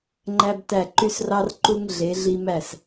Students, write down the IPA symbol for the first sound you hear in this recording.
ŋ͡ǃ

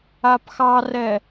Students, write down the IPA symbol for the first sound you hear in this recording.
a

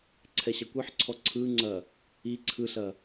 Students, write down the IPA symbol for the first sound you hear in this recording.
ǀʰ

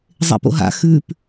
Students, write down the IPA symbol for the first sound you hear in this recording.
zˤ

